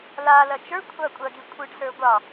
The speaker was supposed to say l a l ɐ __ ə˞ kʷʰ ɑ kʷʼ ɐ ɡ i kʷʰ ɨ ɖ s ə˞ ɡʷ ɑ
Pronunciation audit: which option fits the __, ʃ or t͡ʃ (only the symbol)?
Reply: t͡ʃ